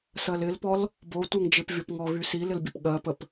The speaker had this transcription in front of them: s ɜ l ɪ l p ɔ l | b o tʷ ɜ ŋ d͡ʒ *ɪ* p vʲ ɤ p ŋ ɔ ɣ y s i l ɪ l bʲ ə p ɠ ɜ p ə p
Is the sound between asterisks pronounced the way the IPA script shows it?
yes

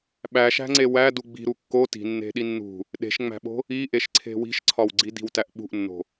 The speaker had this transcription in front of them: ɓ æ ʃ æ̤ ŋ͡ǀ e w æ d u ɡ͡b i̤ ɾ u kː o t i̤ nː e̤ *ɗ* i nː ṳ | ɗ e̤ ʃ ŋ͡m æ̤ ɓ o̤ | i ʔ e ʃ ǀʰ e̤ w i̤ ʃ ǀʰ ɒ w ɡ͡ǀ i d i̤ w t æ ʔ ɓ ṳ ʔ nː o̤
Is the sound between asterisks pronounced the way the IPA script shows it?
yes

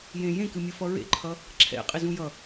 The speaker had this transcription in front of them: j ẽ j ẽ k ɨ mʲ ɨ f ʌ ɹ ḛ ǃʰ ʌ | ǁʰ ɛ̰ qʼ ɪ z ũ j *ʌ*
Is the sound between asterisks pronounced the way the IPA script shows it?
yes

